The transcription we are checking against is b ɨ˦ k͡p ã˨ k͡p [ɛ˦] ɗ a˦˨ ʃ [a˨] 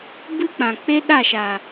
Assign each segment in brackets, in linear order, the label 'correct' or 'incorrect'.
incorrect: e˦, correct

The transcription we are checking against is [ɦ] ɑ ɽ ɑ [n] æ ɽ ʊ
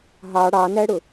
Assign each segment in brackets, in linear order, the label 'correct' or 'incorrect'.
correct, correct

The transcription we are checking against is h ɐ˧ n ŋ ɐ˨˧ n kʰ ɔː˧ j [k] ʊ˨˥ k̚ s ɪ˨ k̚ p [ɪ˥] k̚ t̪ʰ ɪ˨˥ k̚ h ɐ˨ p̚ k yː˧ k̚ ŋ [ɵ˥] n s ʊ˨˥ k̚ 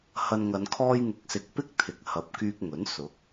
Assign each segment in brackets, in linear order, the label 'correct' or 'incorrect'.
incorrect: ŋ, correct, incorrect: ɵ˨˥

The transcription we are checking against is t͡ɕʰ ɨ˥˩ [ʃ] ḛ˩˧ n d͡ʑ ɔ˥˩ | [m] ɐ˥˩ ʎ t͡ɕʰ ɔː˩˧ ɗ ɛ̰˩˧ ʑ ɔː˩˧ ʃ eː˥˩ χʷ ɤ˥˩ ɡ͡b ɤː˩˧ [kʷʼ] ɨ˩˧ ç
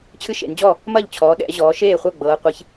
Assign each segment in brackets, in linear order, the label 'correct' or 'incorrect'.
correct, correct, incorrect: qʷ

